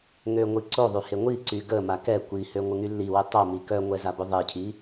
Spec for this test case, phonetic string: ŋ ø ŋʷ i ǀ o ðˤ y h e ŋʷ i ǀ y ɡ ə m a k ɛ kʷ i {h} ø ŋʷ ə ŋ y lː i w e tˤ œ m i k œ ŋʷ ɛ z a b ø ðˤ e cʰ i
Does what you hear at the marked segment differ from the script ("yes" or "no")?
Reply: no